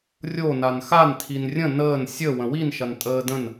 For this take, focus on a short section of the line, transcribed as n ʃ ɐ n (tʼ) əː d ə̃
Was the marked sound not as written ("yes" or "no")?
no